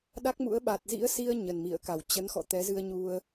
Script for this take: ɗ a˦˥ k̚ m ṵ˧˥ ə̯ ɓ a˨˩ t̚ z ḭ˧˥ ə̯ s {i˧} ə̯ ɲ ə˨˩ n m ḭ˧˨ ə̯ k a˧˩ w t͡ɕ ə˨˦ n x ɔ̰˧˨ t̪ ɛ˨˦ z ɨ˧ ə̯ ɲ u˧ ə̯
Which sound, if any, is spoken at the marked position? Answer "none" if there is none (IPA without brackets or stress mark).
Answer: i˧